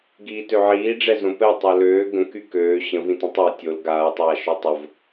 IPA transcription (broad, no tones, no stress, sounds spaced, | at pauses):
ɡ iː t ø ʕ iː ɖ͡ʐ ɛ z õ p ɛ tˤ o l øː ɡ ə̃ k y k øː ɕ ə̃ v ĩ t ĩ tˤ ɛ tʲ o l ɡ aː tˤ aː ʃ œ tˤ ə v